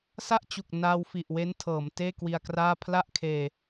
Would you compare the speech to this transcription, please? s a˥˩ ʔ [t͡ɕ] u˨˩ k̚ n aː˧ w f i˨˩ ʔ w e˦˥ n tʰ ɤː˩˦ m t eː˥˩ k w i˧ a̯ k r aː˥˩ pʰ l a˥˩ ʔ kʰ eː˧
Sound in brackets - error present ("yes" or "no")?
no